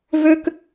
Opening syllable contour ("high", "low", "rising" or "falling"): high